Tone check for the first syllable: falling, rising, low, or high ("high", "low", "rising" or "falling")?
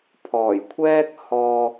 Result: low